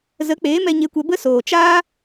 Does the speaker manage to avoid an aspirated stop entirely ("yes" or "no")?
yes